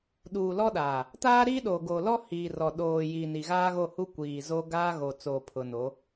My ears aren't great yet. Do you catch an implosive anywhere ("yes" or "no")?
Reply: yes